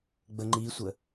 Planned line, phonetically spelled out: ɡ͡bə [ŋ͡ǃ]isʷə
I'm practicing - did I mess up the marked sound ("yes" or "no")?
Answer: no